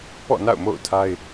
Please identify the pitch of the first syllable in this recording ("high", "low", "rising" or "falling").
falling